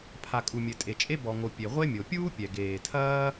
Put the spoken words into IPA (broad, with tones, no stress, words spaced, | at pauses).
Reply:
pʰa˩kʼu˩mʲɘ˩ tʼe˩t͡ʃʼe˥ bɔ˩ŋo˩ pʲe˩ʁʷe˥mʲo˩ pʲuː˥pʲɛ˩ ɡeː˩tʰɐː˥